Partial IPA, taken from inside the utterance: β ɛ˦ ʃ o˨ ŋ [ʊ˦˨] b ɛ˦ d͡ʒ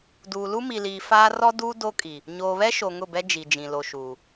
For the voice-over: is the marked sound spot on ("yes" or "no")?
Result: yes